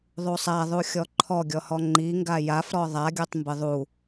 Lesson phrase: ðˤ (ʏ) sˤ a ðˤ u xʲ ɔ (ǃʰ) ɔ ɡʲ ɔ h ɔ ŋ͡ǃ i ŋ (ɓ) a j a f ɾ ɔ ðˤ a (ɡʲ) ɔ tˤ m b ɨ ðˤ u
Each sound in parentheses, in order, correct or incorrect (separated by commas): incorrect, correct, incorrect, correct